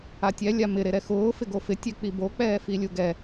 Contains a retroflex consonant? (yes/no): no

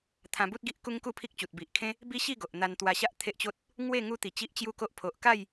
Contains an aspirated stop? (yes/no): yes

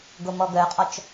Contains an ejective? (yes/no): yes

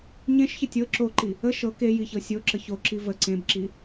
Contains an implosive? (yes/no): no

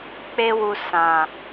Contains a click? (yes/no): no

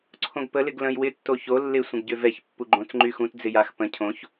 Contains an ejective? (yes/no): no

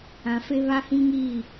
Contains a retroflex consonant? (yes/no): no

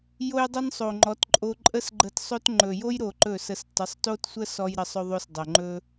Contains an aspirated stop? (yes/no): no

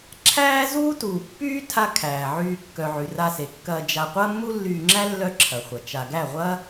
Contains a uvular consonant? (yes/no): yes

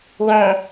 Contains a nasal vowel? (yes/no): yes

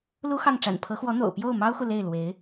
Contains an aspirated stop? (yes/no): yes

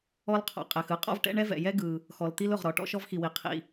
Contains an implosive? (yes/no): no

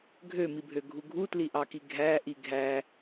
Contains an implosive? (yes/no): no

